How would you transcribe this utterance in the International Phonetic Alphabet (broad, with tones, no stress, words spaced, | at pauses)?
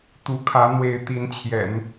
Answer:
t̪u˧˥kʰä˧˥ n̪we˧˥ɪ̯ t̪i˧˥nt͡ɕʰjɛ̰˨˩˦n